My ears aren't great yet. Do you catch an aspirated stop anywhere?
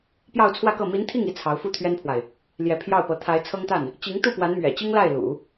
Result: yes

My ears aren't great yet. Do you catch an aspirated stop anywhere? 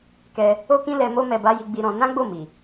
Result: no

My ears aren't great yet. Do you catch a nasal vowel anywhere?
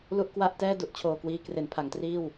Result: no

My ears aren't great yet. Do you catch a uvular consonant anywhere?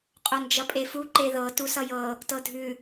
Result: yes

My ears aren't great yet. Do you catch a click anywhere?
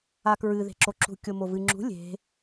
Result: yes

